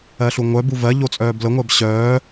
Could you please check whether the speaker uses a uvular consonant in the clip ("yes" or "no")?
no